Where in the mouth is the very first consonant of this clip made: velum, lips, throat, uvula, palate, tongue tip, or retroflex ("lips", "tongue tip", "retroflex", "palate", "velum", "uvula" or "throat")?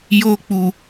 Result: palate